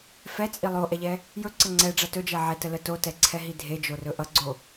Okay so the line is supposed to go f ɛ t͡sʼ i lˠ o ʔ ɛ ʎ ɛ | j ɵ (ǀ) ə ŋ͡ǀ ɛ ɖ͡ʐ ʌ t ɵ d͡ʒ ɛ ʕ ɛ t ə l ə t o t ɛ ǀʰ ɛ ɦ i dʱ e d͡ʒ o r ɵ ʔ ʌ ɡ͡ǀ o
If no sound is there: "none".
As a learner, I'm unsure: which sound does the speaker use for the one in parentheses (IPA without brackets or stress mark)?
ǀ